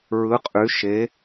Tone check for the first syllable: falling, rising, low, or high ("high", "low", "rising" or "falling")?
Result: rising